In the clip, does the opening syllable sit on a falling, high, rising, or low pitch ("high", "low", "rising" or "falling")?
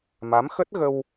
rising